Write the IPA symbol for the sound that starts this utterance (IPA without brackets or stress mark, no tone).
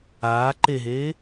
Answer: aː